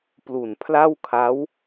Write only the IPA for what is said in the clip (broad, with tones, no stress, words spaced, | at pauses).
plu˨˩npʰla˥˩wkʰa˦˥w